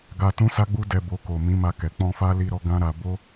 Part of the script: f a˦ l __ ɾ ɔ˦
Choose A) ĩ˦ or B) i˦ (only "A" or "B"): B